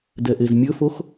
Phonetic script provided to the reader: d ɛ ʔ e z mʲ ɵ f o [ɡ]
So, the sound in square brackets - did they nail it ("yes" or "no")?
no